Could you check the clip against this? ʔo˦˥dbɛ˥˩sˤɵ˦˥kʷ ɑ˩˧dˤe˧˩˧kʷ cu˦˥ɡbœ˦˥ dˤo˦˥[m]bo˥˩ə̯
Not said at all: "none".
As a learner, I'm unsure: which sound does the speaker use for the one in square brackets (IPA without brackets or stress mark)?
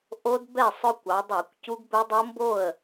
m